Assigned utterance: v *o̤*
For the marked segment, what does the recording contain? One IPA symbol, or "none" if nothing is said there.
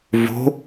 o̤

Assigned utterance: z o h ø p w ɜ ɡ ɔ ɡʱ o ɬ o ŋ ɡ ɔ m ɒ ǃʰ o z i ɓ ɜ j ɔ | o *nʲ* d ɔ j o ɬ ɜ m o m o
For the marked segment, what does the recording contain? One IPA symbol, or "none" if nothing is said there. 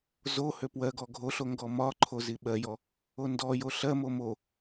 n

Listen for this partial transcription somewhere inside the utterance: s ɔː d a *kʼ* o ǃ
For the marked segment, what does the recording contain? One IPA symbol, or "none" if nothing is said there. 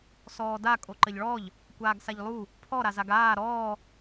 kʼ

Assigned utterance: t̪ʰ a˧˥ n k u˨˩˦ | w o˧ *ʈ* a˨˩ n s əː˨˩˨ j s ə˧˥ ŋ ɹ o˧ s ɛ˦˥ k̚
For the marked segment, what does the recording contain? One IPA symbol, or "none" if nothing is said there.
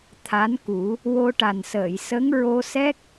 ʈ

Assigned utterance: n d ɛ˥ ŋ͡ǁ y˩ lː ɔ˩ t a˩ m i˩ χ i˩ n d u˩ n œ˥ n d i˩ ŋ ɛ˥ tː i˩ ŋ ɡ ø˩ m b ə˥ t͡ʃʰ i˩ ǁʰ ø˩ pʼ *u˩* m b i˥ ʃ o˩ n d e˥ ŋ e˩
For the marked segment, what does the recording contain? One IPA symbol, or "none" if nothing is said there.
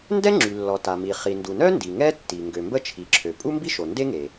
u˥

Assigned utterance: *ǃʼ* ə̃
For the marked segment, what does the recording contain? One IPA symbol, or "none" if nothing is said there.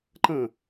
ǃ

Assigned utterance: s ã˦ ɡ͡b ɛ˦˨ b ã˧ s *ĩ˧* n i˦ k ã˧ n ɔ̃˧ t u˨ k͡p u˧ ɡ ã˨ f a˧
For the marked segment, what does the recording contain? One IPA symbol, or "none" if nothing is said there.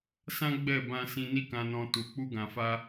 ĩ˧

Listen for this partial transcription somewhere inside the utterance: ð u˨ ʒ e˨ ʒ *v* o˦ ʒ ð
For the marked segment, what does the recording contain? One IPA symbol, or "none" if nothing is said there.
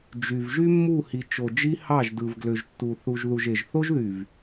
θ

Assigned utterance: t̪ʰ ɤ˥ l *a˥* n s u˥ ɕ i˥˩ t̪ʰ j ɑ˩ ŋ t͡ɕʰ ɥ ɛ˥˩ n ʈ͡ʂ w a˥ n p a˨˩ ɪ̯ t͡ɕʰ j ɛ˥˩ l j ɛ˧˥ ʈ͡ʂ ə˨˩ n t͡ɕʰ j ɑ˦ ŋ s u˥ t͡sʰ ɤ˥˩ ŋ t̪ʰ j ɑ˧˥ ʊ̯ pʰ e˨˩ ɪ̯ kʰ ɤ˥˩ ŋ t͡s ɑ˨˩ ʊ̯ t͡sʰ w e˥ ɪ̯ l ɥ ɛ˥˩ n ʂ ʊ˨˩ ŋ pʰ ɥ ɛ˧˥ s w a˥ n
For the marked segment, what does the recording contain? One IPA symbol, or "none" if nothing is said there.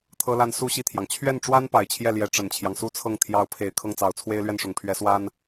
a˥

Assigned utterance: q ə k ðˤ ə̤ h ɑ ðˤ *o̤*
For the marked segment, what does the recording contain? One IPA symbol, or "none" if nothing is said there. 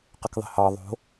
o̤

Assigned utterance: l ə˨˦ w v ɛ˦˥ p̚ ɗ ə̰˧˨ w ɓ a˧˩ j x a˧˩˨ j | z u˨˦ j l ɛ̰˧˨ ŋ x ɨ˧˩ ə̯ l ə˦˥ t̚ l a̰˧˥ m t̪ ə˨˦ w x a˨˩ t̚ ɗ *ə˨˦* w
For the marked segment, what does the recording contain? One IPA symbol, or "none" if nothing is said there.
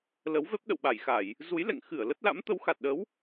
ə˨˦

